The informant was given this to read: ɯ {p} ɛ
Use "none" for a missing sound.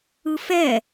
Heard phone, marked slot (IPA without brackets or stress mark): f